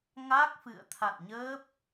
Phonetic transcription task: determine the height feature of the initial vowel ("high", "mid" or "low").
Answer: low